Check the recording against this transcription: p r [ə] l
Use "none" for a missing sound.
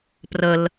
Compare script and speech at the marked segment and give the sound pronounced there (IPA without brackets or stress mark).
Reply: ə